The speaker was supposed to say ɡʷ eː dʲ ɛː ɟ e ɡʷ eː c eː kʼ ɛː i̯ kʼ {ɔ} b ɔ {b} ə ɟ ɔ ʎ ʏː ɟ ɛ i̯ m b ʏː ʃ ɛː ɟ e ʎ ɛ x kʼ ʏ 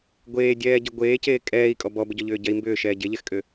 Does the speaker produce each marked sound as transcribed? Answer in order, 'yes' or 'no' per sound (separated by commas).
yes, yes